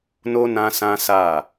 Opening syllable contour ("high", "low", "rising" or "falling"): high